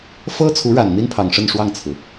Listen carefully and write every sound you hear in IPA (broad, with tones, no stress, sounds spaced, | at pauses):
f ɤ˥ t͡sʰ u˧˥ ɻ a˨˩ n n̪ i˥ n pʰ ɑ˨˩ ŋ ʂ ə˥˧ n ʂ w ɑ˥˩ ŋ t͡sʰ ɹ̩˩